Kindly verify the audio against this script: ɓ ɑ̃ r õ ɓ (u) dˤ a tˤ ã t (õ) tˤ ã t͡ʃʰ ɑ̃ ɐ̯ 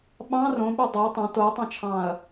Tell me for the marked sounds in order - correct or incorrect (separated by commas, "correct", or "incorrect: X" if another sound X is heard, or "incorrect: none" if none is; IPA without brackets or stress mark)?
incorrect: y, incorrect: o